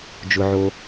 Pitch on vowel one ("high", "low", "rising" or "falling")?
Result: low